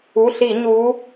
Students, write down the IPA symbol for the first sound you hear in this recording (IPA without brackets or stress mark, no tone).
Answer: u